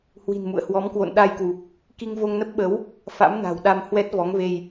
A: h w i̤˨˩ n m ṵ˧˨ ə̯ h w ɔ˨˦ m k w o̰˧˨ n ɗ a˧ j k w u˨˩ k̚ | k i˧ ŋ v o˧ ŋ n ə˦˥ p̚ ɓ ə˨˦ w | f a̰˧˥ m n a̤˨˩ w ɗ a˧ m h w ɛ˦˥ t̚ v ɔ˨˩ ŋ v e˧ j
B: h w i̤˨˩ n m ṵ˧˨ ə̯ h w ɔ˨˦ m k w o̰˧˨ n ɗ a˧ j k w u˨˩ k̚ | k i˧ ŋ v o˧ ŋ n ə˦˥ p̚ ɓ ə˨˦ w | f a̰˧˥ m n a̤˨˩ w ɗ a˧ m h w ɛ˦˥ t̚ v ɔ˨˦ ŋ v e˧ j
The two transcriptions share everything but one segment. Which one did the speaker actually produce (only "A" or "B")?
B